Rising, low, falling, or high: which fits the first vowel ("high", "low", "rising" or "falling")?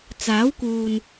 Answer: rising